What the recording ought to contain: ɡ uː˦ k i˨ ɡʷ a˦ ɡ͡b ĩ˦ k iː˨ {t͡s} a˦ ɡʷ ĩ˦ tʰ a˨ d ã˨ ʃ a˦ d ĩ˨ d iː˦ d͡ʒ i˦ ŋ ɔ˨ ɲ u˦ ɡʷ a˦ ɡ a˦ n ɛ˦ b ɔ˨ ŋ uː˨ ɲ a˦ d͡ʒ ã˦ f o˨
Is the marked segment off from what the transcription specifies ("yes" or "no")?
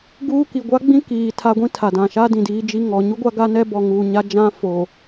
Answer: yes